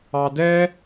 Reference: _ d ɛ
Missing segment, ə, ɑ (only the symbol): ɑ